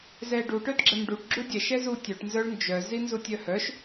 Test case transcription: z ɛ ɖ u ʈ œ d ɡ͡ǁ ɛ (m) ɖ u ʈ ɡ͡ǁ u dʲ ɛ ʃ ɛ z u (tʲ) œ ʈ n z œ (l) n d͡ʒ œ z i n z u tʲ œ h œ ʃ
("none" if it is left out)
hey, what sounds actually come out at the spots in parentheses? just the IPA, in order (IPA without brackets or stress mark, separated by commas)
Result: m, tʲ, ɭ